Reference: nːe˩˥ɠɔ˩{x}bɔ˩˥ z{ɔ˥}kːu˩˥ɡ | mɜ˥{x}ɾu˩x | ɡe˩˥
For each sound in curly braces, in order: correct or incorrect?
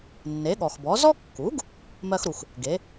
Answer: correct, correct, correct

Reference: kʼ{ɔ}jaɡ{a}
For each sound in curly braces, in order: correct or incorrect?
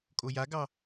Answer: incorrect, incorrect

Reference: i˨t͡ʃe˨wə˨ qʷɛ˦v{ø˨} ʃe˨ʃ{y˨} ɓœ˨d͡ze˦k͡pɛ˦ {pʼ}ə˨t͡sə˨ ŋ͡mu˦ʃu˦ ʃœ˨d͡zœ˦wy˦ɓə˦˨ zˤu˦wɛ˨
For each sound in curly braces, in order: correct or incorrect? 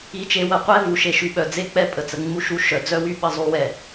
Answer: incorrect, correct, correct

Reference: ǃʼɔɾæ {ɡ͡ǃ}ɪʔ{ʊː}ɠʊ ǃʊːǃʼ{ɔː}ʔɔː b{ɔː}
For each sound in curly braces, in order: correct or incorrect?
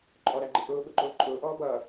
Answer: correct, correct, incorrect, incorrect

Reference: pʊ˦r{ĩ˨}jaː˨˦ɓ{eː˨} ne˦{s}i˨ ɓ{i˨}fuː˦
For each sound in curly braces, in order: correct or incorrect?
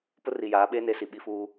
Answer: incorrect, incorrect, correct, incorrect

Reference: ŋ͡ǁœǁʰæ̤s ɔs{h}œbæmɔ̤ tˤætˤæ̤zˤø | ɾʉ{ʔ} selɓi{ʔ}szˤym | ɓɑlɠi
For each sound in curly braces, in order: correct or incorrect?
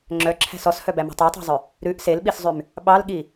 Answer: correct, correct, incorrect

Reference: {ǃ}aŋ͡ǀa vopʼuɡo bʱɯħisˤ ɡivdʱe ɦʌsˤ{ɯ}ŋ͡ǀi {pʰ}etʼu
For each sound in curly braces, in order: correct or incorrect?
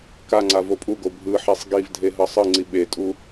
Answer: incorrect, correct, incorrect

